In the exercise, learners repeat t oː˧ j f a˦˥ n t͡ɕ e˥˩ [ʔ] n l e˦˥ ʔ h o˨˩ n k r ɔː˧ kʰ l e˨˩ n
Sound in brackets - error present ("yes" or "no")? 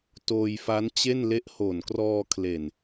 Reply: yes